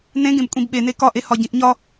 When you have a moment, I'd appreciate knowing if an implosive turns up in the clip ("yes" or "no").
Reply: yes